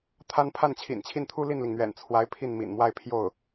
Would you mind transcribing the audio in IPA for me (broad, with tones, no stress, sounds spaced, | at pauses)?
t̪ʰ a˥ n pʰ a˥˩ n t͡ɕʰ ḭ˨˩ n t͡ɕʰ i˥˩ n t̪ʰ u˥ l i˥˩ n l i˩ ŋ n̪ ɥ ɛ̰˨˩ n t͡sʰ w a˧˥ ɪ̯ pʰ i˥˩ n m ḭ˨˩ n m w a˥˧ ɪ̯ pʰ j o˥˩ ʊ̯